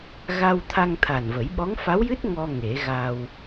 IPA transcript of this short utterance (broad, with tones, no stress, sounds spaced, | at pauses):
ɣ a˧ w t̪ʰ a˧ ŋ t̪ʰ a˨˩ n v ə˨˩˦ j ɓ ɔ˧˥ ŋ f a˧˥ w j ɨ˦˥ t̚ ŋ ɔ˧ ŋ e˨˩˦ ɣ a˧ w